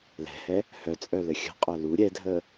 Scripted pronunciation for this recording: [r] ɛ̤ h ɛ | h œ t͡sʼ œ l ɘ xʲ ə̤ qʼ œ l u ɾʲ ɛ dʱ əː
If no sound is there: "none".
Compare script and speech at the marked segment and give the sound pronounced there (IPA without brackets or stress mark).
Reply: l